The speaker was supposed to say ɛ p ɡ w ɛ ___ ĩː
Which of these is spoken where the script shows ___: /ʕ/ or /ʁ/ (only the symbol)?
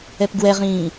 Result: ʁ